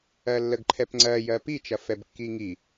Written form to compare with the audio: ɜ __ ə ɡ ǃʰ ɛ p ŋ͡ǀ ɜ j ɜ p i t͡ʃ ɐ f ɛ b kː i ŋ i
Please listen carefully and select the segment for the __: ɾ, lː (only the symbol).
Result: lː